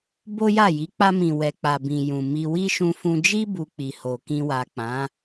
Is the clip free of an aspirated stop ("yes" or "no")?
yes